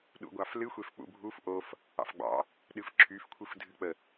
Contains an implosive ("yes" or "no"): yes